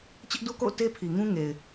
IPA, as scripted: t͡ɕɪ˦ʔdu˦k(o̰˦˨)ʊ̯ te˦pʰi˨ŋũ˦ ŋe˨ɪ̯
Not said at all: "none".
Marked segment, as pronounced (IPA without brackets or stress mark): o̰˦˨